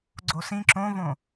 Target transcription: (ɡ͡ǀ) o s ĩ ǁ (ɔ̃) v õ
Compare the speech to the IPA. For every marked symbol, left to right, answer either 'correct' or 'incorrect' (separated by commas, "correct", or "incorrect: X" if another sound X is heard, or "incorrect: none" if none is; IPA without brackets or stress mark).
correct, incorrect: õ